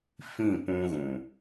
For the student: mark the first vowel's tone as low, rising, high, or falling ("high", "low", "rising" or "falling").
falling